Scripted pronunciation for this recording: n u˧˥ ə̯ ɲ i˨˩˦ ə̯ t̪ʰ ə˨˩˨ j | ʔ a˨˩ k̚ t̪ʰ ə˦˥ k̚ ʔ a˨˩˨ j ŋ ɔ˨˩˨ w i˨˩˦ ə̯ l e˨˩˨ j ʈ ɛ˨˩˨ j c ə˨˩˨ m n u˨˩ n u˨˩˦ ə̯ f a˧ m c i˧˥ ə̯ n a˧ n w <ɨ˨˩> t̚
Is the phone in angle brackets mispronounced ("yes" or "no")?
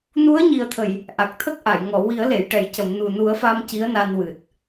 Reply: no